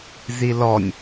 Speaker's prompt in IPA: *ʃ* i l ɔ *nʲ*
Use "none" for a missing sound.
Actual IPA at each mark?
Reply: z, nʲ

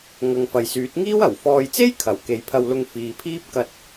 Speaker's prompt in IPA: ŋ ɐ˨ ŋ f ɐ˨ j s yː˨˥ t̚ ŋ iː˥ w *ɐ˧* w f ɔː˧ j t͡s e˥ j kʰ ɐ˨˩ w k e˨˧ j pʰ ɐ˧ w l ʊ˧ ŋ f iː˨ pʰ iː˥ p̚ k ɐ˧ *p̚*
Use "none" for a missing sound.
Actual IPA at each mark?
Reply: ɐ˨˩, t̚

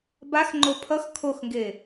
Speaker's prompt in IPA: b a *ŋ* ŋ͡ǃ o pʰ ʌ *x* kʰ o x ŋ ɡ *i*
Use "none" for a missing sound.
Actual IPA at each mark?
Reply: x, x, e

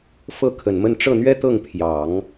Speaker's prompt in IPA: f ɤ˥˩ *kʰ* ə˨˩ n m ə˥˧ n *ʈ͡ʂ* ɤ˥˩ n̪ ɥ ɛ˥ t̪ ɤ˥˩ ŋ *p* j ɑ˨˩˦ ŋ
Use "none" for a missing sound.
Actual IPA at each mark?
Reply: kʰ, ʈ͡ʂ, pʰ

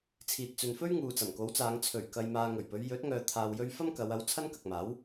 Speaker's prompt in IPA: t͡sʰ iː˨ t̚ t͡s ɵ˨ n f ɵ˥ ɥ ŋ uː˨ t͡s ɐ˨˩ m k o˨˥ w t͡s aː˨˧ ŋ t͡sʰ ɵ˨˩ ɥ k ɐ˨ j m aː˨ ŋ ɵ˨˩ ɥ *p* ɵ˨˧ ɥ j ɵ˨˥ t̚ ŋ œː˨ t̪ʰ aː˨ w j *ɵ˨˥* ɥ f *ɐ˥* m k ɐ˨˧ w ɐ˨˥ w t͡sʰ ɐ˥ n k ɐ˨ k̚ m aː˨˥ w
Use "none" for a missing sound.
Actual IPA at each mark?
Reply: p, ɵ˧, ɐ˥

